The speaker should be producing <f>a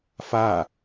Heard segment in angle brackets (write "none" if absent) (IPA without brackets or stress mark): f